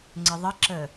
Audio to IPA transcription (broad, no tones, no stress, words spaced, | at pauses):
ŋ͡ǀɪðˤəǁəː